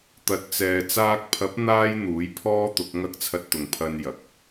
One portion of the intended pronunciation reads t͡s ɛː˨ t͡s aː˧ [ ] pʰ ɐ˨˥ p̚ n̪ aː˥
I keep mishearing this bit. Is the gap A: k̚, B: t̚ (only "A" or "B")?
A